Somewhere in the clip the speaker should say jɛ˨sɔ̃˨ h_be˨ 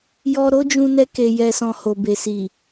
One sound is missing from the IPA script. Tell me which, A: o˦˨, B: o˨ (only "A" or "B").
B